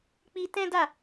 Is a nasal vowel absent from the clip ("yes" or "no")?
no